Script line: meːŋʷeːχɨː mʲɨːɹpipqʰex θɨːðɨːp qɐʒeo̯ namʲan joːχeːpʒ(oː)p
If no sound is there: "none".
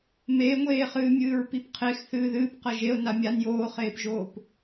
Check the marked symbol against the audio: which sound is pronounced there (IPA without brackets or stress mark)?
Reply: oː